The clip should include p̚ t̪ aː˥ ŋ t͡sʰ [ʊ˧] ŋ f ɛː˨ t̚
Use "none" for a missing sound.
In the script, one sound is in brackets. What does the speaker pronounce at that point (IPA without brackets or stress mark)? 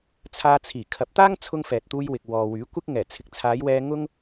ʊ˧